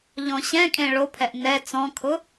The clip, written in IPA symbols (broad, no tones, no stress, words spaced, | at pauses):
ʎɔ̃ɕɛ̃ kʼẽɭopʰɛʔ nɛ t͡sɔ̃kʰʊ